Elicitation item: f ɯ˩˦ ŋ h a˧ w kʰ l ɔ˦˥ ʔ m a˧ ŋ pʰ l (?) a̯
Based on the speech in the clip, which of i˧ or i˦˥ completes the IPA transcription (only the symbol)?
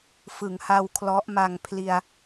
i˧